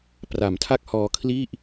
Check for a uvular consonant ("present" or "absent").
absent